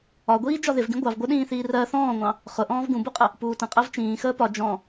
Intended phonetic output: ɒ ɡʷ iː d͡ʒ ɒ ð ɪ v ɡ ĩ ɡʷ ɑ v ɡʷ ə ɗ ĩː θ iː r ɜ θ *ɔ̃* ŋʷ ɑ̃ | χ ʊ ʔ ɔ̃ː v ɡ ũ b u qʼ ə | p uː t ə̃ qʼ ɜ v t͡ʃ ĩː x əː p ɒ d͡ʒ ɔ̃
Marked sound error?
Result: yes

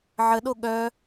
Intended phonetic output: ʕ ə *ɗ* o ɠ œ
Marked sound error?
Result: no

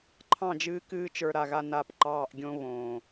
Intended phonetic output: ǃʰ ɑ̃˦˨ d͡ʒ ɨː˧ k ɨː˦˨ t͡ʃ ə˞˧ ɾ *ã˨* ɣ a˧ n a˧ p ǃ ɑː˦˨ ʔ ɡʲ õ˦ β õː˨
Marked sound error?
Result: yes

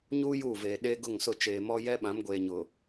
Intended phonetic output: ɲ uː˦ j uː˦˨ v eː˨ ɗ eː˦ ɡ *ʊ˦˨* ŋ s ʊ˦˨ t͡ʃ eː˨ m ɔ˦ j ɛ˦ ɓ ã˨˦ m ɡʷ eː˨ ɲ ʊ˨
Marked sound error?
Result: no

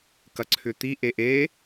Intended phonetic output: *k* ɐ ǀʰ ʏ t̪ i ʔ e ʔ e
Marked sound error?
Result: no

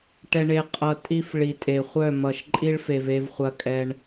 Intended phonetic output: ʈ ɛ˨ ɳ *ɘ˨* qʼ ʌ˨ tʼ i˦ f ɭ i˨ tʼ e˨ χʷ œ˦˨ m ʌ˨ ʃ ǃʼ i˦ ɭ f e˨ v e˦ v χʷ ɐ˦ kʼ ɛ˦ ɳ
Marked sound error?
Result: yes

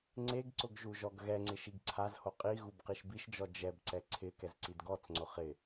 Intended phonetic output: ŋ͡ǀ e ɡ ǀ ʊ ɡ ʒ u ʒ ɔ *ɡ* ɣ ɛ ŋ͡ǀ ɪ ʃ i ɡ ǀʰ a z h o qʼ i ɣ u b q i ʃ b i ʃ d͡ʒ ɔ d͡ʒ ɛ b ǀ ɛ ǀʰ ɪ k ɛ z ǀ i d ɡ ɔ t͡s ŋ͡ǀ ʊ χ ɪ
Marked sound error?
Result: no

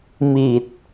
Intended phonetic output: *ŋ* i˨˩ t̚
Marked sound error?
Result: yes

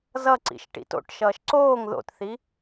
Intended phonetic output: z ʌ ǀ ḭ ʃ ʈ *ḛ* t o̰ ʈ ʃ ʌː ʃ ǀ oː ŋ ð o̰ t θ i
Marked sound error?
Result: yes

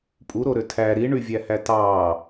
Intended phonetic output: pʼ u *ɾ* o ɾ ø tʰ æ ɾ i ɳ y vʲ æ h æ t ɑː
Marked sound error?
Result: no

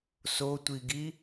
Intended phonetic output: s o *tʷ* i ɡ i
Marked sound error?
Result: no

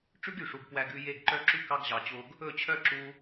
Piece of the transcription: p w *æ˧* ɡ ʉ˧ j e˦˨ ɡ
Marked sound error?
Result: no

